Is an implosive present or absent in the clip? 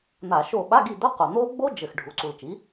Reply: present